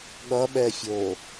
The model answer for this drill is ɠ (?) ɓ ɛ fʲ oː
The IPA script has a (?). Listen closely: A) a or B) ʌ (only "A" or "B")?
B